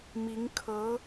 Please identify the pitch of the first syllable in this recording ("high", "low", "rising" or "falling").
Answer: rising